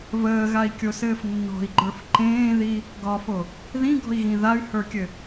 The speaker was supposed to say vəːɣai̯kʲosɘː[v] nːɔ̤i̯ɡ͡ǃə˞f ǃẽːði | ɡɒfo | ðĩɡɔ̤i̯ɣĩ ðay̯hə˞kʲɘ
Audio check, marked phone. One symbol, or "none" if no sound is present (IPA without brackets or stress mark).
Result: f